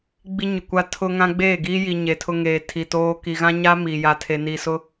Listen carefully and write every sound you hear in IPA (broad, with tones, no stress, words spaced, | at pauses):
ɡ͡bi˦ɲʊ˨kʷa˦ tʰʊ˦ŋã˦ ɡ͡beː˦˨ɡiː˦ji˨ ɲe˨ tʰʊ˦ŋeː˨tʰi˨toː˦ ki˨ɣã˦ɲaː˦ mi˨ ja˨tʰe˨ni˨sʊ˦